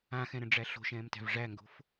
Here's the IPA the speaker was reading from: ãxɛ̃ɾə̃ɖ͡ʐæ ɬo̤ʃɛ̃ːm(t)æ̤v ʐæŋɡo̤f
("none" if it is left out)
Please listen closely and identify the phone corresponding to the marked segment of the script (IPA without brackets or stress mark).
t